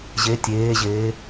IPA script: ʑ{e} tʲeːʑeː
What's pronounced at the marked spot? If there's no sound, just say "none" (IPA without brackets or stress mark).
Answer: e